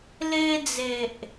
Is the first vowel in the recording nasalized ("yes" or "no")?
no